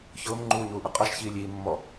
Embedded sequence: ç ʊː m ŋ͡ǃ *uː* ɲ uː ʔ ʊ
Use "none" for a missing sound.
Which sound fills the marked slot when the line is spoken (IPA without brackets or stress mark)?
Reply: uː